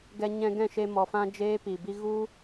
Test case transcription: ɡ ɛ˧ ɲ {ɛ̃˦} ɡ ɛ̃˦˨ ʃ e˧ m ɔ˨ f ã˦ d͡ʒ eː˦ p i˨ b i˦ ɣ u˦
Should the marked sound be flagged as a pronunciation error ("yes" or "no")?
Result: yes